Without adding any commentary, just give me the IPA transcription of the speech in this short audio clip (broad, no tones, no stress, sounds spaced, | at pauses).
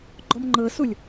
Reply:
ɡ͡ǃ ɔ m ŋ͡ǃ ɤ s u lʲ